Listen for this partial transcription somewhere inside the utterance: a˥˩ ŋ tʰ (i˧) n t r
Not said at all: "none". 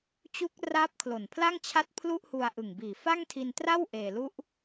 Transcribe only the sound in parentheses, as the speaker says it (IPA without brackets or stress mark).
i˧